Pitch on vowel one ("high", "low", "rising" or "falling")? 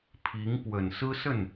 rising